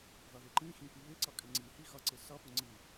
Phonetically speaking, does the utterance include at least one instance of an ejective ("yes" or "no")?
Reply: yes